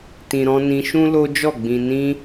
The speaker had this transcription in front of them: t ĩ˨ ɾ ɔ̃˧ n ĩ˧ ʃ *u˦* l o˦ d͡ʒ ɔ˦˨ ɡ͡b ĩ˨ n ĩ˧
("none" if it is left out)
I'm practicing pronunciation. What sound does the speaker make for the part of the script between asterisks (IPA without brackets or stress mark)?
ũ˦